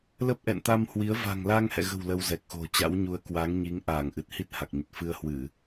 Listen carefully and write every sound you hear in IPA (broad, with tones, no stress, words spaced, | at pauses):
lə˦˥p̚ʔɛ̰˧˨n t̪a˧mhwi˨˦ə̯ va̤˨˩ŋla˧ŋhɛ̰˧˨ɣə̤˨˩w lə˧wzɛ˨˩k̚xo̤˨˩ t͡ɕa̰˧˥wɲu˨˦ə̯ kwa˨˦ŋɲi˨˦ŋ ʔaː˧˩ŋʔɨ˨˩t̚ hi˦˥t̚ha˨˩k̚ɲə˨˩t̚ fɨ˧ə̯hwɨ˧˩˨